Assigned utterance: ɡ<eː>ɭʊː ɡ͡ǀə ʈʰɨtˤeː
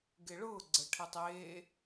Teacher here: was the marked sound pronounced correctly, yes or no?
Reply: no